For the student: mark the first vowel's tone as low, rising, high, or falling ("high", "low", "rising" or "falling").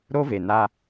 high